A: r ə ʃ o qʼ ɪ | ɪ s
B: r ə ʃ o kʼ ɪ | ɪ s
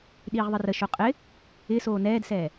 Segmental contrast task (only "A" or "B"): A